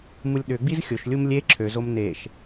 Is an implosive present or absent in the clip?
present